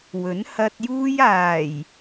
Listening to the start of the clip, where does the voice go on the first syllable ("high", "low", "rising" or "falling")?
rising